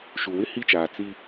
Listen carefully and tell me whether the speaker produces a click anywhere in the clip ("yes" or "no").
no